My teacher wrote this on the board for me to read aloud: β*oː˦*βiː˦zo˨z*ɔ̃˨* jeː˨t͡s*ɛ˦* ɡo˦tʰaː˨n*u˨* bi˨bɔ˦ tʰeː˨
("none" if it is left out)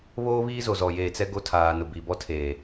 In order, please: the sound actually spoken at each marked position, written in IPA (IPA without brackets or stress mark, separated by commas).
oː˦, ɔ˨, ɛ˦, ʊ˨